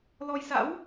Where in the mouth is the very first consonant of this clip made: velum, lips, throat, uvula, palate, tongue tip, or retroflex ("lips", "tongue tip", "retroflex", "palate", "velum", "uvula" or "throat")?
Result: tongue tip